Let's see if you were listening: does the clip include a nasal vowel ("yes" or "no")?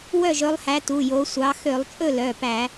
no